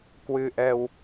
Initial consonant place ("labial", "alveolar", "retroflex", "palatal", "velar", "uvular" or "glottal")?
velar